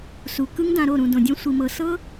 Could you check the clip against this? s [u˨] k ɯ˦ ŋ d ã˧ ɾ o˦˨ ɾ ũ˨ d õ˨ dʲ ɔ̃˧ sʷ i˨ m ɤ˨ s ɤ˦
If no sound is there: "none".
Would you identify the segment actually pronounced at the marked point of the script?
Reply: u˨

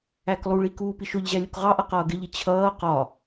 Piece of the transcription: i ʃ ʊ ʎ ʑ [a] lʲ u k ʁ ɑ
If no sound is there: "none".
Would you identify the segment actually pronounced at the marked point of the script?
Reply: æ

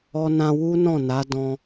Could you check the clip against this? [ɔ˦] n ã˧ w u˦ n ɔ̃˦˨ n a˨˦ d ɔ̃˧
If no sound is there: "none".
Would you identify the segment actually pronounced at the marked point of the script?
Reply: ɔ˧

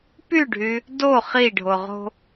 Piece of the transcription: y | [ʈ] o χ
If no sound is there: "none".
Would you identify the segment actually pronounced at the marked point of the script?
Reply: d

